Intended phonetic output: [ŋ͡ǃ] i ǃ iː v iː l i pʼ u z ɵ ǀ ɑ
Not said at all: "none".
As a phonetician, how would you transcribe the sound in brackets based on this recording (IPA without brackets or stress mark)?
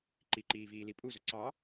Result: ǃ